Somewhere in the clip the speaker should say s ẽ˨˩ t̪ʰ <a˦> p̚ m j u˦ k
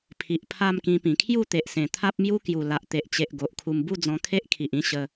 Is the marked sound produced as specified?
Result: yes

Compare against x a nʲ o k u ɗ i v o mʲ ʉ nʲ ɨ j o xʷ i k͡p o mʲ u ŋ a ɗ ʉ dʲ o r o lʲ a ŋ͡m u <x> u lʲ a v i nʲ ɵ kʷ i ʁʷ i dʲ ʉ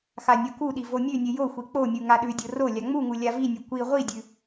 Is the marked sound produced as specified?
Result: no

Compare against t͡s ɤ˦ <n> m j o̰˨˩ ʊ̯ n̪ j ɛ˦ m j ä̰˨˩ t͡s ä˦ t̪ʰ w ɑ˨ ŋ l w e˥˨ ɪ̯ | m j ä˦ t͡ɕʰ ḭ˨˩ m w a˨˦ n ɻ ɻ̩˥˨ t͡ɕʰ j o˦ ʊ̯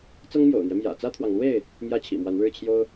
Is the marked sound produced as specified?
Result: no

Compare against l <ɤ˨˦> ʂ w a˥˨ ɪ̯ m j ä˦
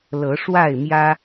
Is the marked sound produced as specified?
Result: yes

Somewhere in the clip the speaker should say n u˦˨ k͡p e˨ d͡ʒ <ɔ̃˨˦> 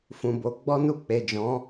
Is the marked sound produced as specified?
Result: yes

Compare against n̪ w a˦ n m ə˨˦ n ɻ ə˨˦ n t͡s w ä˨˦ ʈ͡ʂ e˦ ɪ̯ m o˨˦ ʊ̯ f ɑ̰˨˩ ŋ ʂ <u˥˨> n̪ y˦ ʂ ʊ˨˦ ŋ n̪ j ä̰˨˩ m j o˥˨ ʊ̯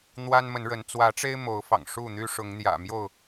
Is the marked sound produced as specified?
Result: yes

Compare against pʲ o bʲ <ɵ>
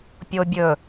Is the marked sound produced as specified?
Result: yes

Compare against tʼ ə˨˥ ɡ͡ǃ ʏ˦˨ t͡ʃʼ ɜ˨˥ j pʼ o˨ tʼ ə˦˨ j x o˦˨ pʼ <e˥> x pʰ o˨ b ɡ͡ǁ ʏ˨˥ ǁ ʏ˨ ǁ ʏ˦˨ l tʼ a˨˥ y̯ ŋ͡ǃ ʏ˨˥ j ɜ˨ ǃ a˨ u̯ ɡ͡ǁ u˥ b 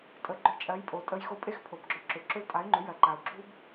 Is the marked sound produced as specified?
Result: yes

